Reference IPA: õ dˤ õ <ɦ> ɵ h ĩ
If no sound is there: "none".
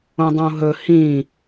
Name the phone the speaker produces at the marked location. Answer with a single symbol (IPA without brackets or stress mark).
ɦ